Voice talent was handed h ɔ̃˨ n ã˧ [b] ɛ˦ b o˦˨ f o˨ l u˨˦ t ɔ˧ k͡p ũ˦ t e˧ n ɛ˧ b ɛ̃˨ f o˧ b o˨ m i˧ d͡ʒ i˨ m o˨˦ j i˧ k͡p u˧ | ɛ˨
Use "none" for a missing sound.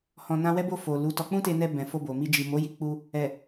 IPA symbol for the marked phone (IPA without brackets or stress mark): w